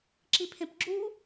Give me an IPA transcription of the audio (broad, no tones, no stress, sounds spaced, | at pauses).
ǁ i pʰ ẽ p ɡ͡ǁ u